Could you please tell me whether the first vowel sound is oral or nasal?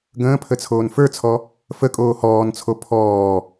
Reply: nasal